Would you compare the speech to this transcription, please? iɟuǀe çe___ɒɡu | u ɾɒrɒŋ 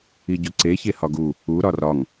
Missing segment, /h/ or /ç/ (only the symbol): h